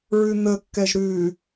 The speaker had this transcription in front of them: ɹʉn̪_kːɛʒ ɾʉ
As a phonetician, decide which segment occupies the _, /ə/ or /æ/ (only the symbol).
ə